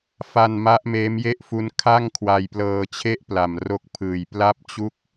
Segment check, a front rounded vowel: absent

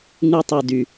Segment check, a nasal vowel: absent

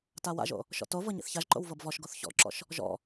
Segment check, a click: present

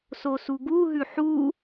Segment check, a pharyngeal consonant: present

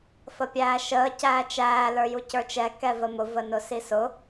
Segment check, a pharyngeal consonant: absent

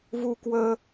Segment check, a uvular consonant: absent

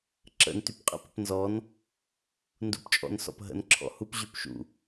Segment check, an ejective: present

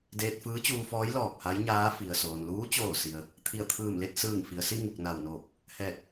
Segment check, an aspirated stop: present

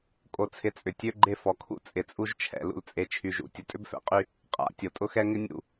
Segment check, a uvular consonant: present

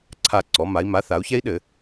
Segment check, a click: present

